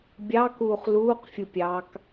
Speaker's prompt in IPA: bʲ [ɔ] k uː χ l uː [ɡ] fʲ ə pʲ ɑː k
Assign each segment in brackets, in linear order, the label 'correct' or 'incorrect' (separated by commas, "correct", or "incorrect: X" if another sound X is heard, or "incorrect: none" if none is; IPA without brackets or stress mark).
incorrect: ɑ, incorrect: q